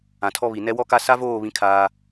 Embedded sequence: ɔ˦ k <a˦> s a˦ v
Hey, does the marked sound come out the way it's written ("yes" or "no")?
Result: yes